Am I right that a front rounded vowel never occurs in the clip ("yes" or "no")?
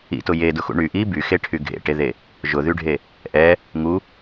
no